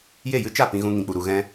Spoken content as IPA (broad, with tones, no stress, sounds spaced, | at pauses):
j e˦˨ j ɨ˦ t͡ʃ a˦˨ p ĩ˦ ɣ ũ˦ ŋ ĩ˧ k͡p u˧ ɾ u˧ ɣ ɛ̃˦